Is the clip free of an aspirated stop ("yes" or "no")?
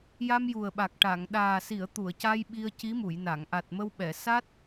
yes